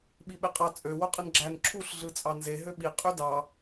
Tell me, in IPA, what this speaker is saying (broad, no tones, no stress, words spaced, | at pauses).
ɓiɓeqʼɑ t͡sʼø woqʼɯnɡ͡ǁæn ǁʰuɬ ɮɯt͡sʼɑnze ɦøɓi qʼydɑ